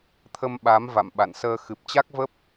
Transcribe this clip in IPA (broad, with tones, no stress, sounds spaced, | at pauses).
t̪ʰ ə˧ m ɓ a˨˦ m v a̰˧˨ m ɓ a̰˧˨ n s əː˧ x ɨ˨˩ p̚ t͡ɕ a˦˥ k̚ v ə˦˥ p̚